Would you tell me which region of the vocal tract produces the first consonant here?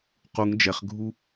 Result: uvula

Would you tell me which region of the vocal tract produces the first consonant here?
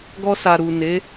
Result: velum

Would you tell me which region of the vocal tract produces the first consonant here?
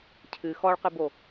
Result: palate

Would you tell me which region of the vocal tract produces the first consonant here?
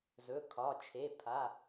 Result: tongue tip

